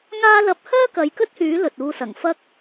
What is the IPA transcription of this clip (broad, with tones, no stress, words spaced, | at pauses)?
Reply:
ŋaː˧lɐ˨˥p̚ hœː˥kɐ˨˧j kɵ˥t̚hyː˨˥ lɵ˨t̚uː˧sɐ˨˩ŋ fɐ˧k̚